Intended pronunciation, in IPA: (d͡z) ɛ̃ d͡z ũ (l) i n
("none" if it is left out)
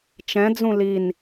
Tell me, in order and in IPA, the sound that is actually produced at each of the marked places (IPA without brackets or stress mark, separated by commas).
t͡ʃ, l